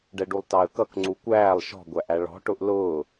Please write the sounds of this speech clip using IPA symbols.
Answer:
ɖ ɛ ɖ u lˠ t ɑ ə̯ k ʌ k ŋ͡ǀ u kʷ æː lˠ ʃ ɔ̤ ɡʷ æ ʔ æ ɭ ɔ̤ ʈ ʊ ʔ l ʊː

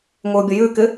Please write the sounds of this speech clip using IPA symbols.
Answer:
ŋʷ ɪ ʊ̯ bʲ ə j ʉ k ɪ

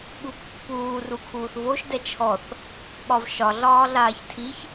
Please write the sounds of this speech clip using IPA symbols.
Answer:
ɠ u pː uː r u kʰ uː θ v o ʃ d ɛ t͡ʃʰ ɔ θ | ɓ ɒ v ʃ ɒ ɮ ɒː ɮ aː ç tʰ i ç

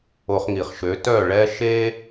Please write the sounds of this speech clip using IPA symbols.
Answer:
o˧ χ ŋ i˩ χ ʃ ø˩˥ t œ˥˩ ɭ ɛ˥ ʃ e˥

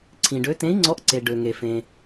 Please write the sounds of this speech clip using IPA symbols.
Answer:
ǀʰ ĩ˩ ɖ ø˨˥ t ẽ˨˥ i̯ ŋ͡ǀ ɔ˨˥ ʔ ǀ e˩ ɖ ø˩ ŋ e˩ f ẽ˩

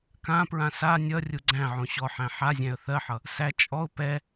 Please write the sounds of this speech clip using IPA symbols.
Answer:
k ã p ɹ ã s a nʲ ʌ rʲ u ɡ͡ǀ æ̃ ʕ õ ɕ ɔ ħ æ̃ ħ a zʲ æ̃ ə̯ θ ɜ ħ ʌ | s æ t͡ʃʼ ɔ ʊ̯ p ɛ

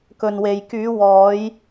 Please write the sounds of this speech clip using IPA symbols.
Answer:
k ɵ˨ n w e˨ j k yː˨˧ w ɔː˨˧ j

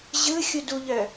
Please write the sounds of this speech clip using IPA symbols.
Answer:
ʑ ɯ xʲ u d u ʎ œ

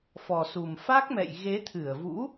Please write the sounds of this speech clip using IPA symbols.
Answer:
f ɔ˨˩ s u˨˩ m f a˦˥ k̚ m ɛ̰˧˨ j ɣ e˨˦ t̪ʰ ɨ˧˩ ə̯ v ṵ˧˥

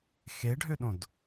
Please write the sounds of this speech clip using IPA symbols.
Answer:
x e ɖʱ ø ɗ õ d

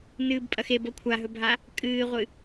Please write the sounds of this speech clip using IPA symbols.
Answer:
n ɨː b pʼ ɐ x e b o kʷʰ a ɦ ɵ bʱ a | kʼ ɨː ʁʷ ɨ

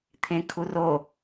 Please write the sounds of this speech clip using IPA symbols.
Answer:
t̪ʰ ẽ kʰ u r o

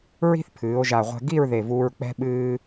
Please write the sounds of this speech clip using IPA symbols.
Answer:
ɹ i̤˥ θ pʰ ɨː˩˧ o̯ ʒ a˧˩ ʁʷ ɛ̤˧ ɡ i˥˧ ɹ ð e˧˩ v uː˧ ɹ k͡p ɛ̤˥ ɓ ɨː˥

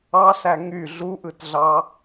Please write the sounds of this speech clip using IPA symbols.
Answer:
ɑ s æ ŋ y ɮ u ʔ ɯ t ɮ ɑ

